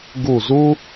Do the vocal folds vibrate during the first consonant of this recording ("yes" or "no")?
yes